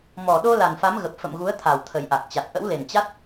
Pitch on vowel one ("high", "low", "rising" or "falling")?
low